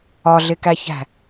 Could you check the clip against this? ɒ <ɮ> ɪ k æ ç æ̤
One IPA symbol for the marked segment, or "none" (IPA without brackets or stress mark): ɮ